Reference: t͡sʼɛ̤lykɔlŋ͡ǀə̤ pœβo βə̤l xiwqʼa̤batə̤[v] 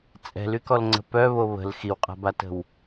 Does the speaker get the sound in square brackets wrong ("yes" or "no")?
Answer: yes